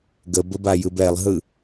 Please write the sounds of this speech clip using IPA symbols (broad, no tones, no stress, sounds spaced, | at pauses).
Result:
ɡ ə b ə b a j ɯ b ɛ lˠ ɦ ɯ